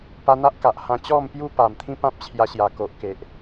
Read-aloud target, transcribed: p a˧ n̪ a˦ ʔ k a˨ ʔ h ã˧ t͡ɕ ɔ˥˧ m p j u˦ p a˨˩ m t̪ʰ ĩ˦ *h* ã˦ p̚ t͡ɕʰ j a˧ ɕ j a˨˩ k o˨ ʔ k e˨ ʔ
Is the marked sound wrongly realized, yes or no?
yes